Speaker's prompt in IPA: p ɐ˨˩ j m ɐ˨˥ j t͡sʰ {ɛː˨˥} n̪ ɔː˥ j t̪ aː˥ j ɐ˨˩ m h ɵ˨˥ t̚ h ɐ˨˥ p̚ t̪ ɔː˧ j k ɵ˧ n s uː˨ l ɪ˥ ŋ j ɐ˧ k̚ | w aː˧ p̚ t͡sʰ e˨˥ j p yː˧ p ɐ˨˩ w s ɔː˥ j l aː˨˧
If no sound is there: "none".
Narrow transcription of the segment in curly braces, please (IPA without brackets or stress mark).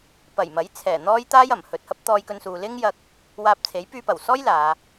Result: ɛː˨˩